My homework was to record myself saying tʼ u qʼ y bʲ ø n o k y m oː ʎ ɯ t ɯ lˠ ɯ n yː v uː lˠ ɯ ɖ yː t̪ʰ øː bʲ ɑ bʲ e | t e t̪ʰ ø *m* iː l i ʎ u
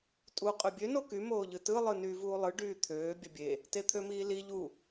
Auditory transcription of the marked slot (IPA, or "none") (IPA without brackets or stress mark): m